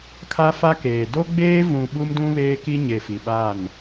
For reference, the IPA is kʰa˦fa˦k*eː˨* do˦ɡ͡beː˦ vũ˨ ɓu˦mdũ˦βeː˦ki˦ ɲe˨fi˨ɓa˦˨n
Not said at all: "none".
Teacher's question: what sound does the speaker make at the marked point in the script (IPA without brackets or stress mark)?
eː˨